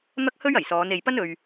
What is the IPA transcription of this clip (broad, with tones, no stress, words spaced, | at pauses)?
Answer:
n̪ɐ˥k̚hɵ˥ɥɐ˨˩jsɔː˨˧n e˨jpɐ˥n ɵ˧ɥ